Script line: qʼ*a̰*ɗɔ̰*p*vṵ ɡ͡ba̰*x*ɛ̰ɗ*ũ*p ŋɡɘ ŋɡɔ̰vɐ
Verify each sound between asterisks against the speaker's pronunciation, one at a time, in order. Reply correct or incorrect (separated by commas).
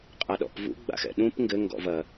incorrect, correct, correct, correct